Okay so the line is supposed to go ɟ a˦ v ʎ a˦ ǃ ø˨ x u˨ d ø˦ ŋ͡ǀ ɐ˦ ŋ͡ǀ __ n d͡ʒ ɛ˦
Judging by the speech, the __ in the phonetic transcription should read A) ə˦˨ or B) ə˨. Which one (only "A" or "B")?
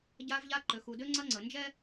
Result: B